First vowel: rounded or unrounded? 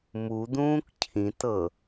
rounded